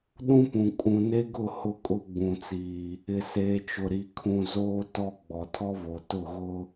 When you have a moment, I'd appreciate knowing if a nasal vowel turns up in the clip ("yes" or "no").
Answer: yes